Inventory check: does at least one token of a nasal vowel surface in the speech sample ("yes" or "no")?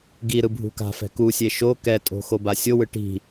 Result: no